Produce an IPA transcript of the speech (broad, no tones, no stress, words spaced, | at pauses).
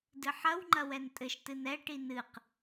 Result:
dɨħɐw ŋ͡ǃɐwɛntʼɘʃ tɨnɛ ʈinɨq